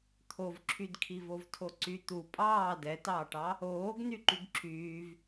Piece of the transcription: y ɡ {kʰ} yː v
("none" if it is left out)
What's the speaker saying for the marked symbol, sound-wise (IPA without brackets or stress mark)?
ǁʰ